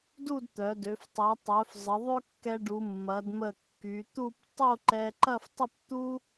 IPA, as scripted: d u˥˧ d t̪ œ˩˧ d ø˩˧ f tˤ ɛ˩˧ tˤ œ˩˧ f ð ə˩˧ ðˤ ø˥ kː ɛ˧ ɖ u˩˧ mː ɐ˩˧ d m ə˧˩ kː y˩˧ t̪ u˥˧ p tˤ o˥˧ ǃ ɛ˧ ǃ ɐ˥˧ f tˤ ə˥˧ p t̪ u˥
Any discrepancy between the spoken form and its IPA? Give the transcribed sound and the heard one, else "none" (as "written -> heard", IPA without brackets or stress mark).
ð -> zˤ